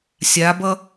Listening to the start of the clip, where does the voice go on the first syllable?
rising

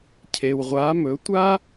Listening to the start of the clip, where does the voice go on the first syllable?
low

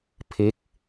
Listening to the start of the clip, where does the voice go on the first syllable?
falling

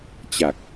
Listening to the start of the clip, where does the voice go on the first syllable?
low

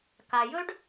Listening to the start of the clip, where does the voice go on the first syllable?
low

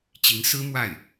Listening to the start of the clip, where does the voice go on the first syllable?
rising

